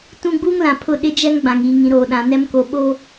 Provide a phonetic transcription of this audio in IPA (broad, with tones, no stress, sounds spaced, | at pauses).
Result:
t ũ˦ ɡ͡b uː˦ ŋ l ã˨ pʰ ʊ˦˨ ɗ ɪ˦ d͡ʒ ɛ˦ ŋ ɡ͡b ã˨ ŋ iː˨ ŋ ĩ˨ ɾ oː˨ ɗ ã˨ n ɛ˦ m k o˨ ɓ o˦